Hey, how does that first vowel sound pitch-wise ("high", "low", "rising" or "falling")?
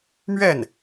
falling